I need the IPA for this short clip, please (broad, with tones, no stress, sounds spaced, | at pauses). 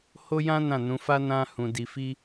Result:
h o˦ j ã˦ n ã˦˨ n ũ˨˦ f a˦ n ã˦ h ũ˧ d i˧ f i˦